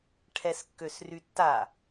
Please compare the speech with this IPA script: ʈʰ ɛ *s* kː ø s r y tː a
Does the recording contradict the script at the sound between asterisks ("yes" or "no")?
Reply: no